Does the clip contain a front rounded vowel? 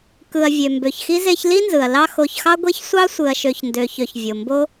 yes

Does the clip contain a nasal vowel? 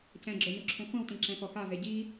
yes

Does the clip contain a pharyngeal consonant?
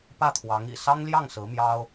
no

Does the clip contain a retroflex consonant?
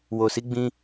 no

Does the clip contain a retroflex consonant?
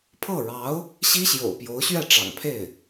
yes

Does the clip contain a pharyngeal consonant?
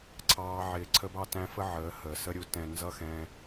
yes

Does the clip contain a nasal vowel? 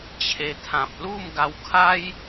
yes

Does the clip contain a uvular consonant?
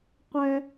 yes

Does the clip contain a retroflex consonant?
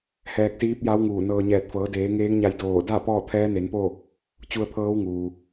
no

